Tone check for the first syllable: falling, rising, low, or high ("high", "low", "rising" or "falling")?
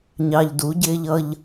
low